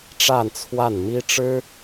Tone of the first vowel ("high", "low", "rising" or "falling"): falling